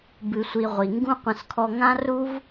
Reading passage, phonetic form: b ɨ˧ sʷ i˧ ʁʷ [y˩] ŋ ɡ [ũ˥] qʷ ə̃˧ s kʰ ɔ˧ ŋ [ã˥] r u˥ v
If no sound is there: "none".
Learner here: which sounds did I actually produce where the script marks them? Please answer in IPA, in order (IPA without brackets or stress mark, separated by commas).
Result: i˩, ũ˥, ã˥